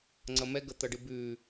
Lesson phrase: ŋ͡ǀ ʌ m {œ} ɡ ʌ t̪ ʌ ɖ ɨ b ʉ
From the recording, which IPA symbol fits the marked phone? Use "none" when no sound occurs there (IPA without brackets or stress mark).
ɛ